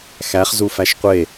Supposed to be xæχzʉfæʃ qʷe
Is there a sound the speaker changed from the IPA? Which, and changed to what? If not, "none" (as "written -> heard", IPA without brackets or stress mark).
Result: ʉ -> u